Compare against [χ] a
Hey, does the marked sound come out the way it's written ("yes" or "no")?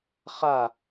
yes